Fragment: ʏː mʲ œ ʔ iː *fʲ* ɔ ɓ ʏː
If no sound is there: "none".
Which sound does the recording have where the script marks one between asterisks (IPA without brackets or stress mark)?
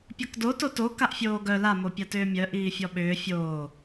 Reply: fʲ